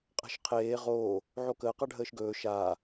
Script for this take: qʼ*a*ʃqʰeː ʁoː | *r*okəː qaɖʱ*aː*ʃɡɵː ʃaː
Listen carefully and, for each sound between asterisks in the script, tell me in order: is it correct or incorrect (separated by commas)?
incorrect, incorrect, incorrect